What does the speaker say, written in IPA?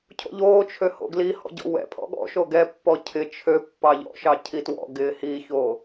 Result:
cʰo̰ʎoːt͡ʃʰø ho̰ɡlihɔ̰ ɟɔ̰wɛ̰pʰɔ̰ ɠɔ̰ ʃoɡɛpːɔ cʰɪ t͡ʃʰø pːɑʎɔ̰ʃɑ cʰitwɔ̰ɡɪː hiːçoː

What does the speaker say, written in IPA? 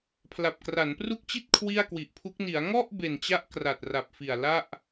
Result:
pʰla˨˩p̚kra˩˦npru˥˩k̚ t͡ɕi˥˩t̚ kʰwi˥˩a̯kwi˨˩ʔpʰu˦˥k̚ ni˩˦a̯ ŋɔ˥˩ʔ be˨˩nt͡ɕa˦˥ʔ kra˨˩t̚ ra˨˩p̚fi˨˩a̯ la˥˩ʔ

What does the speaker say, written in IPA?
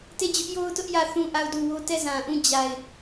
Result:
te˦˨d͡ʑʊ˦ʔjo˦ʊ̯tʊ˦ʔ jä˦˨ θũ˦˨ʔa˦˨ʊ̯du˦˨wo˦ tɛ˦˨zã˨ʔũ˦˨ d͡ʑa˨ɪ̯

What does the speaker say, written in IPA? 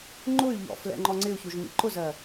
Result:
ŋ͡ǃʊy̯ʎɔ̰ flɛ̰ŋ͡ǃɔŋ͡ǀɪu̯çuʒ mḭǃʊzɜ

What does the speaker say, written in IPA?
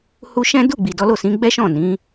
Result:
hu˦ ʃɛ̃˦ du˦˨ɡ͡bi˨ dɔ˨˦lo˦˨sĩ˨˦ ɡ͡bɛ˦ʃɔ̃˦˨nĩ˨˦

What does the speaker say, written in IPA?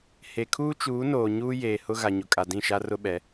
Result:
he˨kʰuː˦t͡ʃuː˨˦noː˨ ɲuː˦ jeː˨hʊ˦ ɣa˨ɲʊ˨kʼa˨ dĩ˦˨ʃa˦rʊ˦ɓɛ˨˦

